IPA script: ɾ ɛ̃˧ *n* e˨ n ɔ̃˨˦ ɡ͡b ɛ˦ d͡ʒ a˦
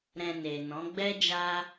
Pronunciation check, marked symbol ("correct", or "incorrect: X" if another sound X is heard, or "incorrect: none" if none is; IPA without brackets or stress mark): correct